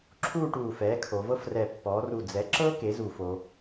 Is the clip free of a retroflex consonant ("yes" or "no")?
no